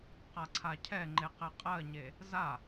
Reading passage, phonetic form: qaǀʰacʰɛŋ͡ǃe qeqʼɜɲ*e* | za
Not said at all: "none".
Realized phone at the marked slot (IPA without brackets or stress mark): e